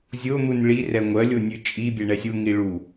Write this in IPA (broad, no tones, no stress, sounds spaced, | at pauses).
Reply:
zʲ o n̪ u n ɭ i r ɛ ŋʷ ɜ lʲ o nʲ ʉ t͡ʃʼ i bʲ ɛ ɳ ɛ sʲ u ŋ i ɭ u